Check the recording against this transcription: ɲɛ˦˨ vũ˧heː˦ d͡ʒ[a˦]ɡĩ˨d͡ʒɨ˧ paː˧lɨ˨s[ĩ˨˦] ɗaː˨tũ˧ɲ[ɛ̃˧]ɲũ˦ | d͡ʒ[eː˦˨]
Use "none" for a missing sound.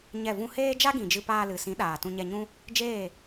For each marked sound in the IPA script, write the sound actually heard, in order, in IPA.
a˦, ĩ˨˦, ɛ˧, eː˦˨

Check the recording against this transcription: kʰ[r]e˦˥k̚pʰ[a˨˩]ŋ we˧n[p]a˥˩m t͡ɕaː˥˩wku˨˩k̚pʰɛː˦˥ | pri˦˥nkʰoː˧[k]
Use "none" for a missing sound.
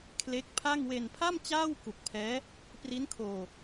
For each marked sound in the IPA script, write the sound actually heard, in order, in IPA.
l, a˥˩, pʰ, none

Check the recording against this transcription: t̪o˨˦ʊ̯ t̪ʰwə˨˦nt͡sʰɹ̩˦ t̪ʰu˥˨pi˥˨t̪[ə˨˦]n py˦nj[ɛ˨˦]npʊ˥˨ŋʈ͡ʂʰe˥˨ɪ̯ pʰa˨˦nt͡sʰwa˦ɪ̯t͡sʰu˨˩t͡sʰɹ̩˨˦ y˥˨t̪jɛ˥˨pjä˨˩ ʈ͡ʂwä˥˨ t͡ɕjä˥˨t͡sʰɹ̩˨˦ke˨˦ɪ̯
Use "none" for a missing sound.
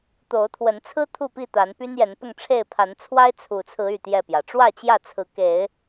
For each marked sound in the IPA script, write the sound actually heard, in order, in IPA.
a˨˦, ɛ˨˦

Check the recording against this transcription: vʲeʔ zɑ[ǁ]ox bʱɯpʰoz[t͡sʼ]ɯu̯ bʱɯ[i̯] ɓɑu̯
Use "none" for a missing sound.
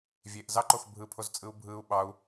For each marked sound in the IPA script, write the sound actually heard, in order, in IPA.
ǃ, t͡sʼ, u̯

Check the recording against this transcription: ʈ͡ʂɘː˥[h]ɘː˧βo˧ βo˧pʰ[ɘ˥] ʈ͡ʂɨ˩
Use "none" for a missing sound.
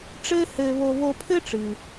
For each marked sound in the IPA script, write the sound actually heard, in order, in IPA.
h, ɘ˥

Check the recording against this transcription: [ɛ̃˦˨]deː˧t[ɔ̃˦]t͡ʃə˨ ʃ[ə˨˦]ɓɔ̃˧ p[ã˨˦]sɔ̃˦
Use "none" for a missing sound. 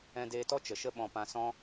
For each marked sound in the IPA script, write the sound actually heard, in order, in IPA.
ɛ̃˧, ɔ˦, ə˦, ã˧

